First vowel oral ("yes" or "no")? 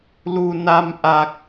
yes